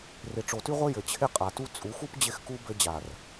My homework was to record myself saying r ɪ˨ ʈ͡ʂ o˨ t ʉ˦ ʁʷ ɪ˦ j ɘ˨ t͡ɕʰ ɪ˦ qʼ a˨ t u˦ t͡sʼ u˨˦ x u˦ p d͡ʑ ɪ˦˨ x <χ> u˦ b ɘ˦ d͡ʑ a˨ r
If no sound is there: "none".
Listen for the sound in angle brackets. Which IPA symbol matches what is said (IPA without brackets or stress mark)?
k